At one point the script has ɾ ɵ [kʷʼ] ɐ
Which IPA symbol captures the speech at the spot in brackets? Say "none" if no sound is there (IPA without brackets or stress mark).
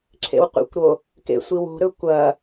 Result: kʷ